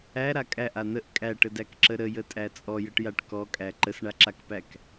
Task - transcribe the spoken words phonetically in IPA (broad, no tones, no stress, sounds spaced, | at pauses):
æ ɾ a kʼ æ ʔ a n̪ ə ʔ kʼ æ ʈ ə d æ k ǁ ə ɾ ə j ə tʼ æ t͡sʼ ɔ j ə ʈ j a ʈ k ɔ kʼ æ ǃ ə s ɳ a ǁ a k p æ k